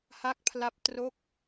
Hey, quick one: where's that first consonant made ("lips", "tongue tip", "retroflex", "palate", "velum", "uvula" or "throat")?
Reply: throat